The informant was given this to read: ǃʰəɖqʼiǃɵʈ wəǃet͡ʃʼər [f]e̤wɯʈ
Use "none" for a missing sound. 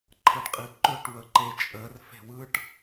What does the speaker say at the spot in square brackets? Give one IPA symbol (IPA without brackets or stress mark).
f